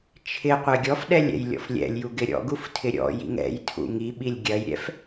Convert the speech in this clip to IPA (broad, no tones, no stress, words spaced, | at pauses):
t͡ʃʰɪ qʷɛɡʲɔfɗɛlʲ ɛ̰jlʲɔ̰flʲɛ̰lʲju ɡɪɾʲɔ̰ɡuf tʰɪɾʲɔ̰jḭŋ ɛ̰jtʰṵ ŋiɓilʲ ɡʲɐjɾʲɛ̰f